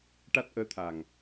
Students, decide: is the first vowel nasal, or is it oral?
oral